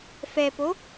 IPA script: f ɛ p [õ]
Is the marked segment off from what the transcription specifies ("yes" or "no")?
yes